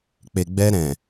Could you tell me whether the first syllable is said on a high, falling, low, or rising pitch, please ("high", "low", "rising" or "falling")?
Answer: low